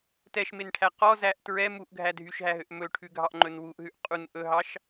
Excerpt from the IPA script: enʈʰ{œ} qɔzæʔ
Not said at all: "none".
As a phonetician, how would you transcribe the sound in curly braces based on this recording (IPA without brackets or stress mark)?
æ